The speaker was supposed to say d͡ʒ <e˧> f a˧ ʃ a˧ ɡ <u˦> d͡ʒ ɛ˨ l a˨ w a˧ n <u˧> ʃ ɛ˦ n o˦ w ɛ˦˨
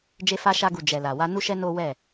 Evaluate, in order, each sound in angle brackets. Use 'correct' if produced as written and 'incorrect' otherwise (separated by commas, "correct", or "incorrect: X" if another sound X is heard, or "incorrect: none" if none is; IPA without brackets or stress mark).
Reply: correct, incorrect: u˨, incorrect: u˦